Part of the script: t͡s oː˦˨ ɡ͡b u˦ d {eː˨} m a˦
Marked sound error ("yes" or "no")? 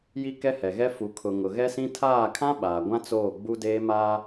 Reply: yes